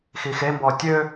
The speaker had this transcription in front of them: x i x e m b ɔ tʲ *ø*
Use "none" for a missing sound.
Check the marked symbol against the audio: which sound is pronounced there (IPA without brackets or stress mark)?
ø